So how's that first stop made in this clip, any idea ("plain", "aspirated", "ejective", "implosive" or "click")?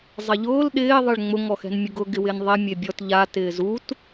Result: implosive